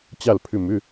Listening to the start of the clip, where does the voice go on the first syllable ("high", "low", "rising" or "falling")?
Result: falling